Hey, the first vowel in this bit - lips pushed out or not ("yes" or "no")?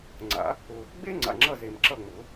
no